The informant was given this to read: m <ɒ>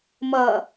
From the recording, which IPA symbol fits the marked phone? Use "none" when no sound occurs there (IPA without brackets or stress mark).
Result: ʌ